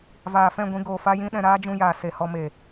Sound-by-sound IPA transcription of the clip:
vaː˨fɛ̃˦˨ɡʷĩ˧ ɡoː˨ fa˦ jĩ˦ɗɛ̃˧ ɾaː˦d͡ʒũ˧jaː˨ se˨hɔ˧ me˨

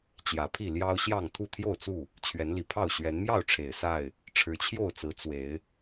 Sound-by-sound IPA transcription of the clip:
t͡ɕjä˨˦pʰi˥˨ ljɑ˦ʊ̯ɕjɑ˥˨ŋ t̪ʰu˥˨t̪ʰjo˥˨ʊ̯t͡su˥˨ | t͡ɕʰɥɛ˨˦nli˨˩pʰɑ˥˨ʊ̯ ɕɥɛ˨˦nmjɑ˥˨ʊ̯ʈ͡ʂʰe˨˩ɪ̯ sa˥˨ɪ̯ | ʈ͡ʂʰɻ̩˨˦t͡ɕʰjo˥˨ʊ̯t͡sɹ̩˨˦ t͡swe˨˦ɪ̯

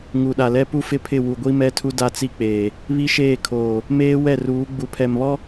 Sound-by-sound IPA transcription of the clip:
ŋu˨ɗa˨lɛ˦ pu˦fɪ˦pʰɪ˦˨ wu˨ɡʷi˦mɛ˦tʰu˦ da˦˨t͡si˦k͡peː˨ | βi˦ʃeː˦˨kʰoː˨ | meː˦wɛ˦˨r uː˨˦ɡ͡bu˨pʰɛ˨mβɔ˦

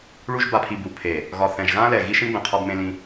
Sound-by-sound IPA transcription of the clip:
ɭu˦ʒ ba˨pʰi˨ bu˨pʰe˨ | ɣɒ˨θɛ̃˨ʒɣã˦lɛ˨ ɣi˦ʃĩ˦bɛ̃˨ qʰɒ˦bmẽ˦lĩ˦

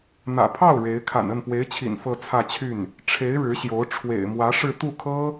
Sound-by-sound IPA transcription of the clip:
n̪ä̰˨˩pʰɑ˥˩ʊ̯ ɻe˧˥ɪ̯ kʰa̰˨˩nə˥˩npwe˧˥ɪ̯t͡ɕʰḭ˨˩n fɤ˥˧t͡sʰä˥˧t͡ɕʰy˥˩n | ʈ͡ʂʰe˧˥ɪ̯ ɻɻ̩˧˥ɕjo˧˥ʊ̯ ʈ͡ʂʰwḛ˨˩ɪ̯mwä˧˥ʂɻ̩˥˧ t̪u˥˩kʰɤ˥

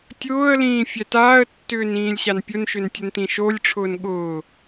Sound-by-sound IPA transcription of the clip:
tʲʊːə̯lĩː fʲɛtaːə̯tːʏːn ĩːlʲɕanpʲʊnʃʏn tʲəntĩʃolʲʈ͡ʂʰʊːn ɠʊː

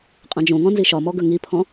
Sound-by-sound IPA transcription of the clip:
qʼɐ̃d͡ʒõŋɔ̃ nziʃɒmɔ ɡəŋipʰɔ̃

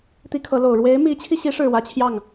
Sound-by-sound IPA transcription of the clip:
t̪i˥kʰɤ˧˥lo˨˩ʊ̯ ɻwe˧˥ɪ̯mi˧˥t͡ɕʰi˧ɕi˧˥ ʂɻ̩˥˩wä˥t͡ɕʰjɑ˥˩ŋ

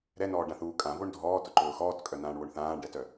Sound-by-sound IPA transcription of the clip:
ɾɛnɔːɖãθuː kʼãvoɳ dʱɔːtʊǃʊː xɔːtkʼœnãːɳwoɳ θãːɳɖɛtœ

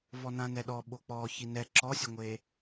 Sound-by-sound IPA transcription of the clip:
vɔnãnɛɗɔ ɓok͡pɔ çinɛ ǁɔsʲɐŋʷe

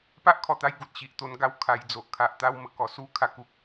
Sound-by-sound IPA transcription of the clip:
pa˦ʔkʰɔ˨˩t̪a˧j ɡu˨t̚ɕi˨ʔt̪o˧n ɡa˧wkʰa˨˩j d͡zo˨ʔkʰa˨ʔt̪a˦wmə˦ kɔ˨˩su˦ kʰa˥˧ku˦k̚

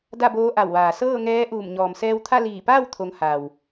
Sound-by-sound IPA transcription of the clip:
da˥˨boː˧˥ʔa˧˩wʋaː˩ sɤː˥˨ŋɛː˧˥ʔuː˧˩m ɲɔː˩msɛː˧wt̪ʰa˥˨ liː˧˩paː˥˨w t̪ʰo˩˧ŋ ha˩w

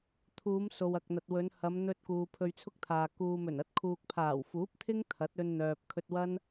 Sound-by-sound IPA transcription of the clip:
t̪ʰuː˨˧m so˨wɐ˨k̚n̪ɐ˨t̚wɵ˨˧n hɐ˨˧mn̪ɵ˧t̚ kuː˨pʰɵ˧ɥt͡sʰʊ˥k̚t̪ʰaː˨ kuː˨ mɵ˨˩nɐ˨˥t̚kʰuː˨k̚pʰaː˨˩w fuː˨˥p̚t̪ʰɪ˥ŋ t̪ʰɐ˨˥t̚ɵ˧nn̪œː˨p̚ kʰɵ˧t̚wɐ˥n

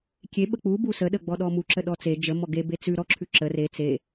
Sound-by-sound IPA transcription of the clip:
kʲe ɓək͡pu busəɗəɡ͡bɔ ɗɔmuǁə ɗɔt͡se d͡ʒəmɔ ɡebe t͡sʉ ɾɔǁʰʉ ǁə re t͡se

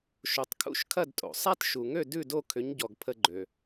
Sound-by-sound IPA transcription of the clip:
ʃo˩tˤkʰṵ˥˩ʃkʰɐ˥˩dtʼo̰˩ sˤa˥t ʃu˩ŋø˥˩ dʉ˥˩do˥˩kʰʏ˩˥ɲɟɔ˩ɡ pʰə˧ɡ͡ǃø˩

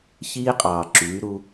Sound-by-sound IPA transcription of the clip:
çiː˦qʼɑː˨ ǁyː˨˦ɾu˦

